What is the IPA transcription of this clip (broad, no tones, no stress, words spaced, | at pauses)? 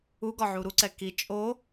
uɡɒ ʕuɾuǀɛ ki t͡ʃʼo